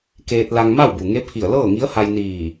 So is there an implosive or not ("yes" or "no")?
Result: no